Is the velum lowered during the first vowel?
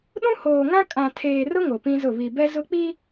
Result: yes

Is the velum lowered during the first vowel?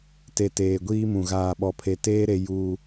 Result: no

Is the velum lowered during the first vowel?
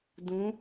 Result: yes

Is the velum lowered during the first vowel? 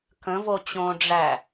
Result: yes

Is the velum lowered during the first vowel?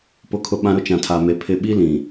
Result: no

